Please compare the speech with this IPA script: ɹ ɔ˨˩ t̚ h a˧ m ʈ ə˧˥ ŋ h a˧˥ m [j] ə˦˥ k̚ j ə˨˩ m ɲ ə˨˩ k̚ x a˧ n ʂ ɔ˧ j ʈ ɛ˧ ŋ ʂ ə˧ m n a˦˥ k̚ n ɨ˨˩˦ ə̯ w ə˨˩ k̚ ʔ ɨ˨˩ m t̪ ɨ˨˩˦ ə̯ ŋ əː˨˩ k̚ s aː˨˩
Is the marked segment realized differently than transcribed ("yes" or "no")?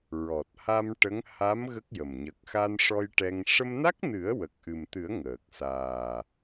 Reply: yes